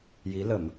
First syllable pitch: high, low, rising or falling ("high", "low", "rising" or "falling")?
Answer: rising